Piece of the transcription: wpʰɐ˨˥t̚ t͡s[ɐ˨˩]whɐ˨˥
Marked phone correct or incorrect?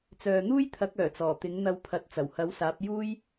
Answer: correct